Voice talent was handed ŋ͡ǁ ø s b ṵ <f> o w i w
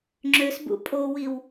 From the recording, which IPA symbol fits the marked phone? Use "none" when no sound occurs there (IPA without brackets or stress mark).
pʼ